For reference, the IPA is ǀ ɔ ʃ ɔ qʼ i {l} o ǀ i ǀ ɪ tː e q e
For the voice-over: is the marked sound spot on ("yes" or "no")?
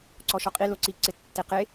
yes